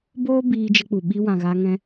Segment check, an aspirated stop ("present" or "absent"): absent